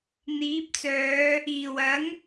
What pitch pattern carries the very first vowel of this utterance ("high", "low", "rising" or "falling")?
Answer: rising